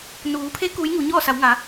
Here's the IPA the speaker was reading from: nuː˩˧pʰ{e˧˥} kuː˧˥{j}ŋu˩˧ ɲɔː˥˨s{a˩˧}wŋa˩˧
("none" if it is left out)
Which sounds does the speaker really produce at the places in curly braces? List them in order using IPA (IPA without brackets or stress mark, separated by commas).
e˧˥, j, a˩˧